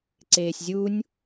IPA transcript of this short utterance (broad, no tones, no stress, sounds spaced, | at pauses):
ǀ eː sʲ zʲ u nʲ